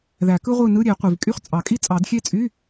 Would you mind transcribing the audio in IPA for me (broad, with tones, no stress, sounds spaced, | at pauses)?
ð æ˨˩˦ k ɯ˥ ʁʷ ɯ˥˨ n ɯ˧˥˧ ɾʲ e˨˩˦ qʷ i˩ v kʼ y˥˨ χ t͡sʼ ɑ˨˩˦ kʼ i˥ t͡sʼ ɑ˨˩˦ d xʲ e˥˨ t͡sʼ y˧˥˧